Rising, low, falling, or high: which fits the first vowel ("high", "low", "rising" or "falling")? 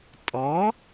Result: rising